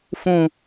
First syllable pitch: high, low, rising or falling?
low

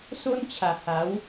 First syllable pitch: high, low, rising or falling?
high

